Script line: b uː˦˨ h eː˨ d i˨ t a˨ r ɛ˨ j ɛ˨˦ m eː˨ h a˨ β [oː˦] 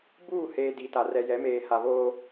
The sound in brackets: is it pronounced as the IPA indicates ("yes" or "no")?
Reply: yes